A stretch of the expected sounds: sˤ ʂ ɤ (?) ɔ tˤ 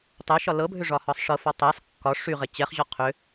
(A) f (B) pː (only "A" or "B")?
A